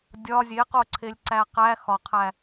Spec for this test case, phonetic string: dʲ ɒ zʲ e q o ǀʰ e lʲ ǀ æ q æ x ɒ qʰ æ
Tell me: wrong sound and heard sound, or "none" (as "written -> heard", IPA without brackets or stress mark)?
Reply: none